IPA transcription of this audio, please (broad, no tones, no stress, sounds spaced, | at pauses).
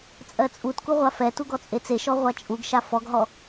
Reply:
t͡sʼ ɜ t͡sʼ u t k u ʁʷ a f ɛ t u ɡ ɔ t͡sʼ e t͡s e ʃ ɔ ʁʷ a t͡ʃʼ u ɡ ʃ a f ɔ ɡ ɦ ɔ